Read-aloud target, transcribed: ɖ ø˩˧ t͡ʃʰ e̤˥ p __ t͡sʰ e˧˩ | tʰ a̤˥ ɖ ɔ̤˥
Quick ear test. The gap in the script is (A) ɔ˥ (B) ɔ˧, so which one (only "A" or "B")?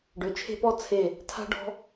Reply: A